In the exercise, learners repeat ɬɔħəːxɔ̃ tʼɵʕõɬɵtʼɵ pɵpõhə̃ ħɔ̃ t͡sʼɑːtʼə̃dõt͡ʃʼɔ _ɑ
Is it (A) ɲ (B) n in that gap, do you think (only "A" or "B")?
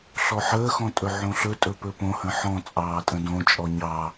A